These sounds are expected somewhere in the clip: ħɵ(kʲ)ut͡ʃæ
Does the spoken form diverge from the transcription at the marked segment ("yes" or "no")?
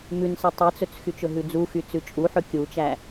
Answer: no